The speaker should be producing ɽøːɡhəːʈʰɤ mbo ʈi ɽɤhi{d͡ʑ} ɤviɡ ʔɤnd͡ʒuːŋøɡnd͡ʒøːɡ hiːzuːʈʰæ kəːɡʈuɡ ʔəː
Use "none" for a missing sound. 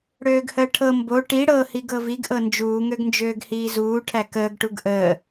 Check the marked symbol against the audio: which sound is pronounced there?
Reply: ɡ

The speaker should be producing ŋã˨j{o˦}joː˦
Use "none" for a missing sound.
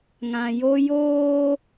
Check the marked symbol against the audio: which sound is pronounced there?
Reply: o˦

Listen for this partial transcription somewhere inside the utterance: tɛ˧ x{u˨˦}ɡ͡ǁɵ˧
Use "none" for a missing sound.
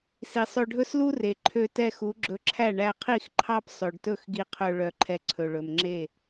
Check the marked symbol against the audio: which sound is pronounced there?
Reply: u˨˦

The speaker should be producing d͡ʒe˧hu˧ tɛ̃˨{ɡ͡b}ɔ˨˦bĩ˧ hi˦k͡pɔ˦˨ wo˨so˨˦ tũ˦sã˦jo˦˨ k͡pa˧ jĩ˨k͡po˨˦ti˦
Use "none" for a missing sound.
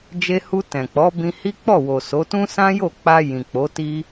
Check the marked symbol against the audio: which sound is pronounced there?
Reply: k͡p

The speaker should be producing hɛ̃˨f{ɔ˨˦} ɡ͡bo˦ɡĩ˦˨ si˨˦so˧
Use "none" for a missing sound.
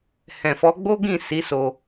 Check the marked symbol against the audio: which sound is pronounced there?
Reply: ɔ˨˦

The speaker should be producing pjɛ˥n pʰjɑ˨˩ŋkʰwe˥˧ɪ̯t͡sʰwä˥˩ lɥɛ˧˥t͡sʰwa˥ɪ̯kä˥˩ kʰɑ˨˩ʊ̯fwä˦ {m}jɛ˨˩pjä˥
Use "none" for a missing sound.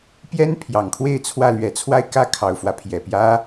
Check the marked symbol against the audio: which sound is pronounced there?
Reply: pʰ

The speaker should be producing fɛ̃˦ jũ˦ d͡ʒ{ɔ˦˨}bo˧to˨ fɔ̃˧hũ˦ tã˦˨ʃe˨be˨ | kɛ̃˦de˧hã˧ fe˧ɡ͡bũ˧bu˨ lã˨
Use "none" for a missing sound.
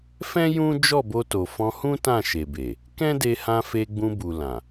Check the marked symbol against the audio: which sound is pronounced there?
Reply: ɔ˦˨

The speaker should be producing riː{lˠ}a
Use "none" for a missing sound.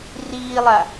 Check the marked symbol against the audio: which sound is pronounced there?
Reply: lˠ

